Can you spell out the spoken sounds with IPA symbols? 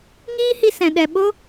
ŋ iː˦ h i˧ s ɛ̃˨ ɗ ɛ˨ ɓ o˦

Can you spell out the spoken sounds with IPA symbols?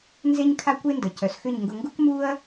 n z e˦ ɲ kʰ a˦ kʷ e˦ n d ə˨ c œ˨ s x ʏ˦˨ ɲ ŋ ɡ ʊ˧ ŋ ɡ u˦ k m u˦ ɐ̯

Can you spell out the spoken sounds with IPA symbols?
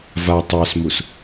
v a tˤ ɑ s m u s

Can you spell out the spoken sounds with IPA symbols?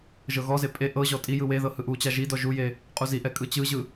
ʒ ɤ ɣ ɔ z e pʼ e ʔ ɤ ʑ ɔ tʼ i j ɯ w e ð ɤ h ɯ ʔ u t͡ɕ a ʒ i d ɔ ʒ u j e | qʼ u z i ʔ ɛ kʼ ɯ t͡ɕ ɯ ʑ ɯ

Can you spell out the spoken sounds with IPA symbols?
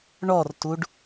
ɳ ɔ r t u ɖ

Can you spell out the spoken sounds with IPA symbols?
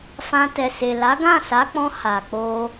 f ã˧ t ɛ˨ s e˨ l a˨˦ ɡ ã˦˨ s a˨˦ k͡p ɔ̃˧ h a˨ k͡p o˧

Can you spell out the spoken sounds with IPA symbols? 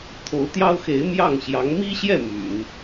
t̪ʰ o˧˥ ʊ̯ t̪ j ɑ˥ ʊ̯ x e˧˥ ɪ̯ m j ɑ˥˩ ŋ ɕ j ɑ˧˥ ŋ m i˥ ɕ j ɛ˥˩ m y̰˨˩˦ n

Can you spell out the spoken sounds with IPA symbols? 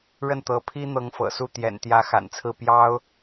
ɻ ə˥˩ n t̪ ɤ˧˥ pʰ i˥ n̪ ɤ˧˥ ŋ f ɤ̰˨˩ s u˥˩ t̪ j ɛ̰˨˩ n t̪ j ä˧˥ x a̰˨˩ n t͡sʰ ɹ̩˥˩ p j ɑ˥ ʊ̯

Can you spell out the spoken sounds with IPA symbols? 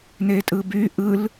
n e tʼ ɯ b y ʔ ɯ l

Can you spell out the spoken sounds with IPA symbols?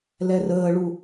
l ɛ r əː ɭ u

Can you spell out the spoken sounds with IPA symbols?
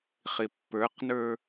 χ ɪ pː ə˞ q n ə˞

